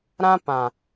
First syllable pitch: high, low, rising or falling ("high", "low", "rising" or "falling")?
high